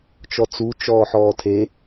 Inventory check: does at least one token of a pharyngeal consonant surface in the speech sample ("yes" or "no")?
yes